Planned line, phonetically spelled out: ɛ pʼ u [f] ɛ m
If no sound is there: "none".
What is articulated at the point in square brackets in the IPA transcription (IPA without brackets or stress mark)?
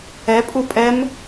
pʼ